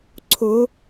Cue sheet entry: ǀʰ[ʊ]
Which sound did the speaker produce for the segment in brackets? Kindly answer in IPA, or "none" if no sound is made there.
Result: ʊ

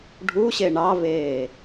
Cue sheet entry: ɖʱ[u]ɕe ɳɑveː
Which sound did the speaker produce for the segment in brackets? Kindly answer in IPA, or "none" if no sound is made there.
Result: u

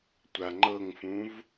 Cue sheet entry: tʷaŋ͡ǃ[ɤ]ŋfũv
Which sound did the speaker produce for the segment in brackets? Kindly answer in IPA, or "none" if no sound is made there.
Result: ɤ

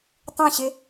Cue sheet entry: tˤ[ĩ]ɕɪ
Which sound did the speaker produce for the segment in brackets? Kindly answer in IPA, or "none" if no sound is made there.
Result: ĩ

